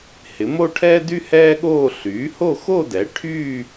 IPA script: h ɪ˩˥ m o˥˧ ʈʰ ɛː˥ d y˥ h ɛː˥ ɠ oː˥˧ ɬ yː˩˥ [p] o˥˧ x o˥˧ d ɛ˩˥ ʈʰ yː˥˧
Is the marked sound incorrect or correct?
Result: incorrect